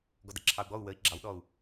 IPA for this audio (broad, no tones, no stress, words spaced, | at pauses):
ɡɔdəǁʰɑu̯ɡ͡bɔu̯ wəi̯ ɡ͡ǁɑwɗɔu̯